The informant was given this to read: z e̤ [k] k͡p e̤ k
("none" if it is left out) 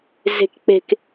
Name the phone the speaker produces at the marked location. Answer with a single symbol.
k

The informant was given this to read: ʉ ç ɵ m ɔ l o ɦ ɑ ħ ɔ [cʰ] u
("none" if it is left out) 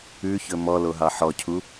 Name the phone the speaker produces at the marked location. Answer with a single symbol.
cʰ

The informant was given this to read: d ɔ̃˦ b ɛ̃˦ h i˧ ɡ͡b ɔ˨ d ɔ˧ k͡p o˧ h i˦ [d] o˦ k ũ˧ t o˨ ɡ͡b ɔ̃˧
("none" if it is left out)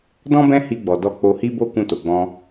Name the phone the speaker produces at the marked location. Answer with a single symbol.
b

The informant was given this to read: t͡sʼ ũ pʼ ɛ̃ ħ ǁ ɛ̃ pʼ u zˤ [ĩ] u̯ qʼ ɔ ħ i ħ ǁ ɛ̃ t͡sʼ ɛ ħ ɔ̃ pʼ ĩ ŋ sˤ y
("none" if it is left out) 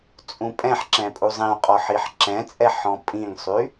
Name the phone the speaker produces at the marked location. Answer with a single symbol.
ĩ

